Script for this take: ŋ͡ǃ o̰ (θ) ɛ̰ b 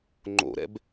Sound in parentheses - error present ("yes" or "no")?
yes